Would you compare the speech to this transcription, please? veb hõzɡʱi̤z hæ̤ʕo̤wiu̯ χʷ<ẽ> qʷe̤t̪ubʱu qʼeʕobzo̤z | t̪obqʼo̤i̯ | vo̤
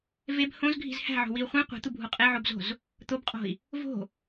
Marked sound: correct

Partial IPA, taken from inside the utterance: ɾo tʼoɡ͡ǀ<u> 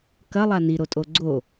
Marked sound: incorrect: o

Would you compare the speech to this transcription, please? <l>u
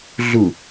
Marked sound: incorrect: ɮ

